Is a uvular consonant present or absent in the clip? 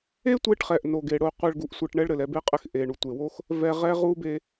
present